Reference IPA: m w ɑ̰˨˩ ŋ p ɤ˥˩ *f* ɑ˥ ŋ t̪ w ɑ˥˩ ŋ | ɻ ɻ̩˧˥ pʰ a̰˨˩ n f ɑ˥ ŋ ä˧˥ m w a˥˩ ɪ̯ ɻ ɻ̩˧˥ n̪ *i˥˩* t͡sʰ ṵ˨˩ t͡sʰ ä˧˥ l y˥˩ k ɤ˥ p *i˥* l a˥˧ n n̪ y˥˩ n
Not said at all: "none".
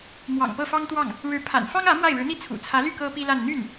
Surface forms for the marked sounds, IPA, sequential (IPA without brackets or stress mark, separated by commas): f, i˥˩, i˥